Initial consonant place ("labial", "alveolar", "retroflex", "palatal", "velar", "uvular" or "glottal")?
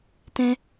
alveolar